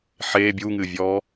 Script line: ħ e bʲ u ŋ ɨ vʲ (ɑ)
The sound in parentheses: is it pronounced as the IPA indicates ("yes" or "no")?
no